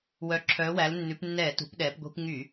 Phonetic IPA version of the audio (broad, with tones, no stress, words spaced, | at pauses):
wœ˩˧ǁʰœː˩˧wæ˩˧lnːʉ˩˧p nːɛː˧˩˧tṳ˩˧pɗɛː˩˧pɡʷi̤˧˩˧p ŋy˧˩˧